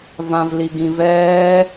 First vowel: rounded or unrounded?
unrounded